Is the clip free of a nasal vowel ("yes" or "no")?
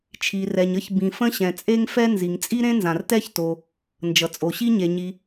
no